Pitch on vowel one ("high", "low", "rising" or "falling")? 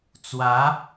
rising